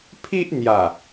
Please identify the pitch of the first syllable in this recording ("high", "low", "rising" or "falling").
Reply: high